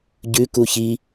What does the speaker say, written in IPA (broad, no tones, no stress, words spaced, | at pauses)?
ɟʉku çi